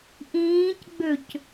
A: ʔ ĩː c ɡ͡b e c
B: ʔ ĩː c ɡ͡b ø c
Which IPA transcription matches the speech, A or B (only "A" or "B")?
B